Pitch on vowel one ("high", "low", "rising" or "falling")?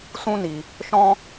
high